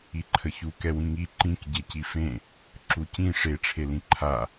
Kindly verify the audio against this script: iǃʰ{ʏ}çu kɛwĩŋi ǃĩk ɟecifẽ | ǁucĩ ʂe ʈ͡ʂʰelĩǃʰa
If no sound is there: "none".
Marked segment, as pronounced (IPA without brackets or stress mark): ə